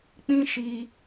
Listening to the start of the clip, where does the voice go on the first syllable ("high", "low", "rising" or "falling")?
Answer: high